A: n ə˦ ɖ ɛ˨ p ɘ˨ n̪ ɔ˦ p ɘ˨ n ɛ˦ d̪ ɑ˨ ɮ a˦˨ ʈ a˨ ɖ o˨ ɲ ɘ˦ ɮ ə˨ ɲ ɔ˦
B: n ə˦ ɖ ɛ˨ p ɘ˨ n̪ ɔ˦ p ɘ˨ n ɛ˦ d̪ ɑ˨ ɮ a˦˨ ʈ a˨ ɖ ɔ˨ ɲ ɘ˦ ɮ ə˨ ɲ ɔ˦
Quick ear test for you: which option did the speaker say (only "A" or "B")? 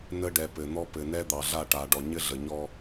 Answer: B